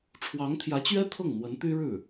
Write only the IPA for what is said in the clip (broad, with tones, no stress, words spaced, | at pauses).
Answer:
ʈ͡ʂʰwɑ˧˥ŋt̪ʰjä˧˥t͡ɕɥɛ˥ t̪ʰɤ˥˩ŋn̪wə˧˥nt̪y˥ɻɻ̩˥˩